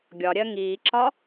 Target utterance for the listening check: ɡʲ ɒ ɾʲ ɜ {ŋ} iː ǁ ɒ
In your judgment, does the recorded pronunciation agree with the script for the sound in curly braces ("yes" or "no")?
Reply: yes